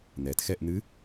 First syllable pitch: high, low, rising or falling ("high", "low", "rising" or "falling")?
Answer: low